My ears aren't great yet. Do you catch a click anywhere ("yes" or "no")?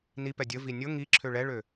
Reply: yes